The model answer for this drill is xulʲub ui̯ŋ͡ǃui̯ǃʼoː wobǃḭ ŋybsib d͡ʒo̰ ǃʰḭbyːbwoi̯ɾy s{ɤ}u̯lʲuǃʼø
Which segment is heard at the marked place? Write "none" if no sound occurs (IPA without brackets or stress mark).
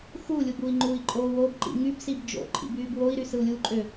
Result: ɯ